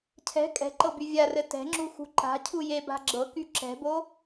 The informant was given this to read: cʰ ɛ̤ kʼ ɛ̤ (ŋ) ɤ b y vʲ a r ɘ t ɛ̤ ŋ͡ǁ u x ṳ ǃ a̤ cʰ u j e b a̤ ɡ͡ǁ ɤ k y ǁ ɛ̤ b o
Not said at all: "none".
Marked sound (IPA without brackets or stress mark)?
ǃ